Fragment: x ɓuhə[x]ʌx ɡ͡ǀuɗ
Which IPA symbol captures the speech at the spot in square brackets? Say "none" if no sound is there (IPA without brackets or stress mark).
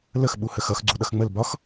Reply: x